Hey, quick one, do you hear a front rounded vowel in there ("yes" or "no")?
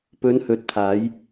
no